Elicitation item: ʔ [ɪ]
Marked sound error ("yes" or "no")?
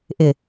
no